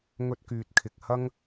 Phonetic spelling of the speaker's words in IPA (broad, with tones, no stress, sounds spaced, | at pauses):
ŋ ɵ˥ t̚ k yː˧ t̚ kʰ ɪ˧ k̚ h ɐ˥ ŋ